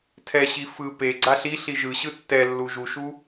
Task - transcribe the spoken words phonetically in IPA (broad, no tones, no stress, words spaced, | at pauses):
tʰɛɕi fɯ pe ɡ͡ǀaɬiɬi ʒɯɕɯ tːɛlːu ʒuʃu